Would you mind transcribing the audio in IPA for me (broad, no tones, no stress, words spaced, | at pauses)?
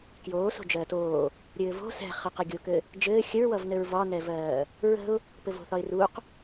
kjoː so̤d͡ʒɜːtoː | ɾʲɘːvo̤ sɛ̤χɘqʌ ɡʲokɘ | d͡ʒɘː xʲəɹwʌvnɘɹ vɒnɛvɜː | ɹə̤ʊ̯ | pɘvo̤θɒɪ̯ruq